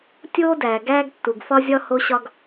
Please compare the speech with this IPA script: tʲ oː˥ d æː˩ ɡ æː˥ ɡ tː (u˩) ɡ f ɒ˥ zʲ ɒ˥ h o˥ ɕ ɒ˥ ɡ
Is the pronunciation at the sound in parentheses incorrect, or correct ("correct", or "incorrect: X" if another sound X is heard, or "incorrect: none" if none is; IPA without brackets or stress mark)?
correct